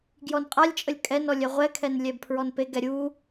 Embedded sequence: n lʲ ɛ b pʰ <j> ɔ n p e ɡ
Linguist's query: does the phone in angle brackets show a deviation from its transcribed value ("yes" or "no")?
yes